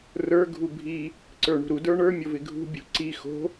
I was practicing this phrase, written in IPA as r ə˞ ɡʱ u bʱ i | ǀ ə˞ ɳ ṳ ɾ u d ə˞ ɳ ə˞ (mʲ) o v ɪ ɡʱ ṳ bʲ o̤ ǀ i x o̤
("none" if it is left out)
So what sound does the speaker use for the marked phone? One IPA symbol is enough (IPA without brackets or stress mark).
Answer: mʲ